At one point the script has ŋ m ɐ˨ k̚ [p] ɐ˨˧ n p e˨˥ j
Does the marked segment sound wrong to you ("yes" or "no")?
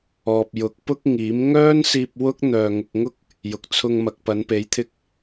no